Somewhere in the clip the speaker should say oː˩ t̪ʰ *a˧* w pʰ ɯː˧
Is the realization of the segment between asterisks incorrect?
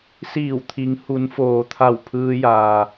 yes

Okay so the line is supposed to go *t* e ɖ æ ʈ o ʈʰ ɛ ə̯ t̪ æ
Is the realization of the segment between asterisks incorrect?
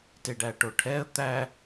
no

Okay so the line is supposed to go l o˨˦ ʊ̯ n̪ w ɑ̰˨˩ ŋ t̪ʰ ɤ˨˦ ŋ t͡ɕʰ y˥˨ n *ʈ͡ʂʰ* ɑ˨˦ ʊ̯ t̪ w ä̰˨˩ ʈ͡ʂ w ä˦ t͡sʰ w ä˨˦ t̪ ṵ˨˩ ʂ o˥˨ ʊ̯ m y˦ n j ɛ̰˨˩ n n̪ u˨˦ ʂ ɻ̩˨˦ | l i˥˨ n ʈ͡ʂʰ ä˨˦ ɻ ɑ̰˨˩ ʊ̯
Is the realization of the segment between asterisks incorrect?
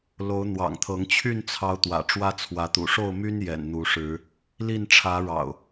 yes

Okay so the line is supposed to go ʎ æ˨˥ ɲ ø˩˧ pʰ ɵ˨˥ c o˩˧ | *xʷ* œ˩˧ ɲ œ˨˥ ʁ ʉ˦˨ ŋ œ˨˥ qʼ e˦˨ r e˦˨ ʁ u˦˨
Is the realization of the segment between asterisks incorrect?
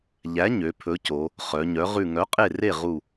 yes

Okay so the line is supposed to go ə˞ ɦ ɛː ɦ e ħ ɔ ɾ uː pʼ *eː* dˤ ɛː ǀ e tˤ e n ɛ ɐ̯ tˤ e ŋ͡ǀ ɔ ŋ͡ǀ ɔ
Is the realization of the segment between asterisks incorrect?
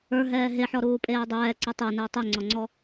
no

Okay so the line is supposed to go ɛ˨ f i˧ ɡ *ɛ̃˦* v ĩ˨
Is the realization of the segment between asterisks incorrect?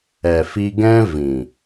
no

